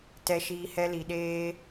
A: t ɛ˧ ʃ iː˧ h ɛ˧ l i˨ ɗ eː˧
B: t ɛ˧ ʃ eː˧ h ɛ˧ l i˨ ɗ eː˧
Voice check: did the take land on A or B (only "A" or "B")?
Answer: A